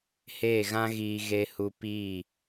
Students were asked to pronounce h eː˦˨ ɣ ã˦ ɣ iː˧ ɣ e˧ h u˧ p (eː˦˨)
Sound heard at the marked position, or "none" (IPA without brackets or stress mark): iː˦˨